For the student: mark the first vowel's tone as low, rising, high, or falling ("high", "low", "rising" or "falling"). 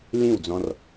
falling